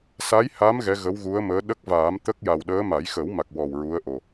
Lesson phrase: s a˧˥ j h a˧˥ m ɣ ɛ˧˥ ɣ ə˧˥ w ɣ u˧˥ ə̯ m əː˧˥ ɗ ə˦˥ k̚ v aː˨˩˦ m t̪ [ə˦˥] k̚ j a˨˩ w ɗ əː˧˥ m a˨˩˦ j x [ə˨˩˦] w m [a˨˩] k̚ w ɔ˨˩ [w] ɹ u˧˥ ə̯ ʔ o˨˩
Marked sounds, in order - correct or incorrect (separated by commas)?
correct, correct, correct, correct